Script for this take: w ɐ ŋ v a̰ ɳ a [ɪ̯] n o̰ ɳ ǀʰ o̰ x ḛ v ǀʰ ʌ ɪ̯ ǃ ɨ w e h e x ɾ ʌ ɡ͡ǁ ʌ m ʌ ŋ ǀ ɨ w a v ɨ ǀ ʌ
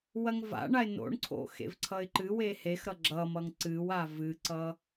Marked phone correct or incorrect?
correct